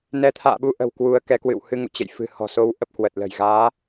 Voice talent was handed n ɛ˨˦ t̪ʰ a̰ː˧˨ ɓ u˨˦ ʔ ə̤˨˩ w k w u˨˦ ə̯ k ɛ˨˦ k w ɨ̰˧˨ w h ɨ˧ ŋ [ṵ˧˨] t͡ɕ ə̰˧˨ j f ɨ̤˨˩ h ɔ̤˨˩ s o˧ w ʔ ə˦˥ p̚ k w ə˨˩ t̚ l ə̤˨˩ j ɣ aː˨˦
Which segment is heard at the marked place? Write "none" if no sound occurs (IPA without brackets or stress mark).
ṵ˧˨